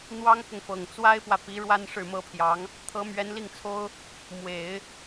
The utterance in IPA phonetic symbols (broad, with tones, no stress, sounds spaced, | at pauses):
n̪ w ɑ˥ ŋ k ʊ˨ ŋ f ɤ˨˩ ŋ t͡s w a˥ ɪ̯ p w ä˨ p i˧˥ ɻ w a˥ n ʂ ɻ̩˥˩ m ɤ˥ pʰ j ɑ˧˥ ŋ | t̪ʰ ɤ˧˥ m ɥ ɛ˧˥ n l i˥˩ ŋ t͡sʰ o˥ ʊ̯ | m w e˨˩˦ ɪ̯